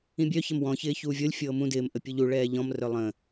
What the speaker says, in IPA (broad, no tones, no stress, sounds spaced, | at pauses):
ĩ bʲ œ ç ə m w ɔ̃ ç ɪː ç uː vʲ ɤ lʲ fʲ ɤː m ũ d ɪː m ʔ ə pʲ u ʎ u ɭ ɛː ʎ ɔ̃ m r œ lˠ ə̃